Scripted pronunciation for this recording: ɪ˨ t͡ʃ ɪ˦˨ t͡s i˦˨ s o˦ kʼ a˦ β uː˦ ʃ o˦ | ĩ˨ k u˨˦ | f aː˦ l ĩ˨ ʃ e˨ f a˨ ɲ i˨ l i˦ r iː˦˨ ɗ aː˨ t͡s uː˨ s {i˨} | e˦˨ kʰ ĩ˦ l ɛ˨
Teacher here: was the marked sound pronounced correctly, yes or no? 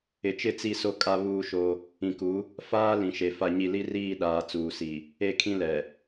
yes